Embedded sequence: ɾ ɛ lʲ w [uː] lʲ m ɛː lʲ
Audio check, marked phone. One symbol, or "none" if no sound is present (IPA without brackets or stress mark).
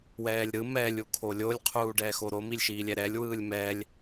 ɯː